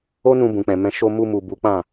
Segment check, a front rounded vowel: absent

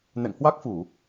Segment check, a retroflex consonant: absent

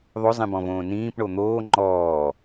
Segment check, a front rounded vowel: absent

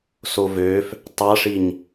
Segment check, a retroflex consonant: present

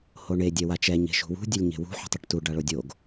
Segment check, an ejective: absent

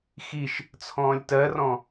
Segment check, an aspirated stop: present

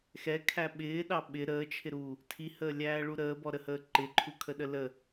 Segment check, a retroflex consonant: present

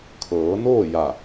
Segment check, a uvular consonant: absent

